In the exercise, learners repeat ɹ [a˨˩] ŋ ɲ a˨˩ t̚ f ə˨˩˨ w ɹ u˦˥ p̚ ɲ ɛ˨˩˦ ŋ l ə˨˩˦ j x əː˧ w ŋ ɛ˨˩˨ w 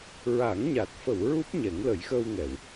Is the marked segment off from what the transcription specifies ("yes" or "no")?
yes